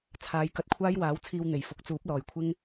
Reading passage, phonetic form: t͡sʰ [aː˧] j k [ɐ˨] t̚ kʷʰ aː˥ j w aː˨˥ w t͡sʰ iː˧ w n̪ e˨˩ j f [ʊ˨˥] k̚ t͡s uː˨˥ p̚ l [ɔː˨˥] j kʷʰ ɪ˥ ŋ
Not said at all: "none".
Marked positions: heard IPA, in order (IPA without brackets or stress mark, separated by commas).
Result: aː˨˧, ɐ˧, ʊ˨˥, ɔː˨